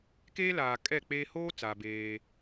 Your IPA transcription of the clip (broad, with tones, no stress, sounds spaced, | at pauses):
k eː˦ l aː˨ kʼ ɛ˦˨ k͡p eː˦ h oː˦ t͡s a˨ b eː˦